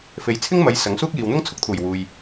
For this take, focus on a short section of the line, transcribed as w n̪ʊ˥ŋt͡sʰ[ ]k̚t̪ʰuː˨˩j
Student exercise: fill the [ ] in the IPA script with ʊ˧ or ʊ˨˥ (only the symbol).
ʊ˧